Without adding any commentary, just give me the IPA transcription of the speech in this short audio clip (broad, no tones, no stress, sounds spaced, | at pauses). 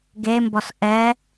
ɡ e m b ɔ s ʔ ɛ